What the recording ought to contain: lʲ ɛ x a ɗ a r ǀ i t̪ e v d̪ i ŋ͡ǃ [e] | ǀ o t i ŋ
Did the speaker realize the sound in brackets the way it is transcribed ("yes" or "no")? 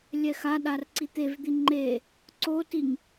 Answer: yes